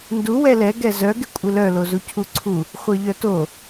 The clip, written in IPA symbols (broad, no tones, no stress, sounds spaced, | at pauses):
n d u w ɛ l ɛ ɡ ɛ z œ ɡ ɪ kʷʼ ɪ l œ l o z u cʰ u ǀʰ u | χʷ ɜ ʎ œ t o